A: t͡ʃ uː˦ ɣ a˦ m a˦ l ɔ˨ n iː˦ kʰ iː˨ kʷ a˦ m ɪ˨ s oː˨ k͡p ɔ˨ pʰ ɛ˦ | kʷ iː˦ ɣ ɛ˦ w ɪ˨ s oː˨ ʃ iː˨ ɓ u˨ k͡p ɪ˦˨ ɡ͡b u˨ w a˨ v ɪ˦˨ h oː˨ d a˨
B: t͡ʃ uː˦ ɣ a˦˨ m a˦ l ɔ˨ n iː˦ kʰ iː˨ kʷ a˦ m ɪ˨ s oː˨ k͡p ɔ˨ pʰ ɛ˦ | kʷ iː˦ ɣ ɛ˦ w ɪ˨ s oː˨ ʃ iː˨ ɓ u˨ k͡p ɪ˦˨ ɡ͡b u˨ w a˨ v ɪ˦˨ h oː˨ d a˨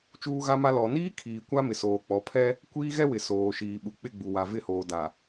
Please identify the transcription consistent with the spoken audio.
A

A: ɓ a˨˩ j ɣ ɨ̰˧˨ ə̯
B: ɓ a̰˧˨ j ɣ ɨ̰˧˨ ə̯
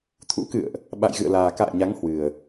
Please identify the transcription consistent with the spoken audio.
B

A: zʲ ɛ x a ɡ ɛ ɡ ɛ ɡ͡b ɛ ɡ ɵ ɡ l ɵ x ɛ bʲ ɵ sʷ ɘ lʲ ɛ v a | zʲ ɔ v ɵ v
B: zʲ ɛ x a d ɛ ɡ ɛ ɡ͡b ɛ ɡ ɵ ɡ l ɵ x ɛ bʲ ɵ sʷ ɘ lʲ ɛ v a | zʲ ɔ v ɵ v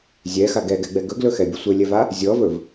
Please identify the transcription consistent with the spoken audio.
A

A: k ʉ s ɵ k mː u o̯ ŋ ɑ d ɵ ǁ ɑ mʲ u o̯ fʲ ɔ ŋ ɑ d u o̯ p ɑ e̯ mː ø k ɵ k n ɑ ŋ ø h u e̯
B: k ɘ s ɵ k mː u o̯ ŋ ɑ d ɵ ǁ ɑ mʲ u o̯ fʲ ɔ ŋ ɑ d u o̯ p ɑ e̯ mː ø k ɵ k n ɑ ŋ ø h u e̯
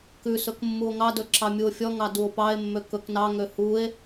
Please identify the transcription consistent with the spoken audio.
A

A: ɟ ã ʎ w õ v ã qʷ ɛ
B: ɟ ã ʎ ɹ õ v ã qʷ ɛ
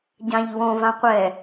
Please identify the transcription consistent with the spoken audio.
A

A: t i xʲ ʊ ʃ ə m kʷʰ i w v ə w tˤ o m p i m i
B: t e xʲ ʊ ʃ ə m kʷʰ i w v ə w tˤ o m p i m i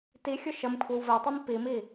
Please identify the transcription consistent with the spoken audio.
A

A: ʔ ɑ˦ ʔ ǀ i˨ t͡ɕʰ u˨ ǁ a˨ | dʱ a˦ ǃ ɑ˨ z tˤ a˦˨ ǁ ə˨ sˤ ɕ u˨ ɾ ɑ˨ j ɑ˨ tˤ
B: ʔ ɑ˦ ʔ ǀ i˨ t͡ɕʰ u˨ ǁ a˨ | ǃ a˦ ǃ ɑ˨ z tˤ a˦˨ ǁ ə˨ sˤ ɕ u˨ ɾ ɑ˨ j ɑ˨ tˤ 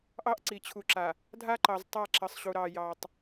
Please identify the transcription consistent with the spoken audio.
A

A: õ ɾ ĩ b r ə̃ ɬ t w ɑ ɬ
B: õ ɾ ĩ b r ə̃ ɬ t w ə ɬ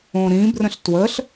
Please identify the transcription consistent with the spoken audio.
B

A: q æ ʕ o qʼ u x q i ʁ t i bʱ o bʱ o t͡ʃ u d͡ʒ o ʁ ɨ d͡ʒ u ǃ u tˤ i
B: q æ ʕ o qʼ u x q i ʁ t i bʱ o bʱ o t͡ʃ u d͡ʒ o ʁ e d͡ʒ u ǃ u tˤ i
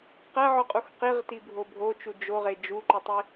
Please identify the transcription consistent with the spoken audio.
B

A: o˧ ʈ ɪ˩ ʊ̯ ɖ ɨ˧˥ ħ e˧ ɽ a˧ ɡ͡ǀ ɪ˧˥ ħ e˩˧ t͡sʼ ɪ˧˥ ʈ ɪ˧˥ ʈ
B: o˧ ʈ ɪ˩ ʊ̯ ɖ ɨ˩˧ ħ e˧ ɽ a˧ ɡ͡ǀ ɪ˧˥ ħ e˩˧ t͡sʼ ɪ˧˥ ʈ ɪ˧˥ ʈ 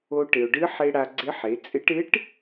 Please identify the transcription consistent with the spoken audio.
A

